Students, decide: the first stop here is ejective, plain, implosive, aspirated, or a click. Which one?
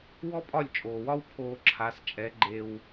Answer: ejective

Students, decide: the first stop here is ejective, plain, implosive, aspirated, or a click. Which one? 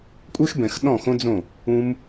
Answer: ejective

